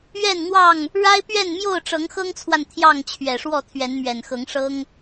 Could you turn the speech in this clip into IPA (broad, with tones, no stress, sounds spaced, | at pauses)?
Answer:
ɥ ɛ˥˨ n n̪ w ɑ˥˨ ŋ | ɻ a˦ ɪ̯ p ɥ ɛ˥˨ n m j o˥˨ ʊ̯ ʈ͡ʂ ɤ˨˦ ŋ x ɤ˦ ŋ t͡sʰ w a˨ n t̪ʰ j ɑ˥˨ ŋ t͡ɕʰ ɥ ɛ˨˩ ʂ w ɔ˥˨ t̪ʰ ɥ ɛ˨˦ n m ɥ ɛ˨˩ n x ɤ˨˦ ŋ ʂ ɤ˦ ŋ